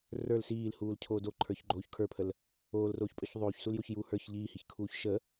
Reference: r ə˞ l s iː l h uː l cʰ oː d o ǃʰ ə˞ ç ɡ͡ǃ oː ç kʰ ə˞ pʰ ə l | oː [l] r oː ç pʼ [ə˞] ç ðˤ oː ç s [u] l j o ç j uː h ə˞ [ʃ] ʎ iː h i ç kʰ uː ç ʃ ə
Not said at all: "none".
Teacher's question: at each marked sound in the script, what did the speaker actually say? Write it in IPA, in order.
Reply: l, ə˞, u, ç

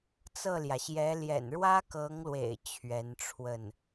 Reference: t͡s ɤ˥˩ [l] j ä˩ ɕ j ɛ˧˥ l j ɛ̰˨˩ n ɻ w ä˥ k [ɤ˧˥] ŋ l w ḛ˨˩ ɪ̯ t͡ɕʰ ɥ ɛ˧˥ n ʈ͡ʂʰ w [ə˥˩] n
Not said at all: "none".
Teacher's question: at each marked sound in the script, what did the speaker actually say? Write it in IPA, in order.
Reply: l, ɤ˧˥, ə˥˩

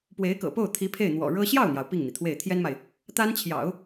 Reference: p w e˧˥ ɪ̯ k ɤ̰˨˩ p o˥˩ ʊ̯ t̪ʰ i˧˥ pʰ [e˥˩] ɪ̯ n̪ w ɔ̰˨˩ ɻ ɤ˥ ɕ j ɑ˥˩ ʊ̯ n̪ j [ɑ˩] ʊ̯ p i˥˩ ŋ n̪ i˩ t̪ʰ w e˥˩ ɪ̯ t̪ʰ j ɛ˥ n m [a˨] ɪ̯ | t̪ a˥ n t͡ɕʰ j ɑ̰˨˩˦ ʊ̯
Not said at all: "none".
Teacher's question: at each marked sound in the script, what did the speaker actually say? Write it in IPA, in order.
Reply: e˥˩, ɑ˩, a˨

